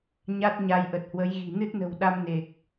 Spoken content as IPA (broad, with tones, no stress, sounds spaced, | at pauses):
ɲ a˦˥ t̚ ɲ a˧ j ʔ ə˨˩ t̚ h w ə˨˦ j ɣ i̤˨˩ n ɨ˦˥ t̚ n ə̤˨˩ w ɗ a˧ m n e˨˩ k̚